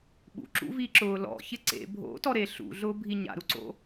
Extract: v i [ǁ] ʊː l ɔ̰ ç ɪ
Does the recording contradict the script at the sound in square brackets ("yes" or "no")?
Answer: no